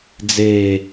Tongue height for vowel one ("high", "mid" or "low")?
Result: mid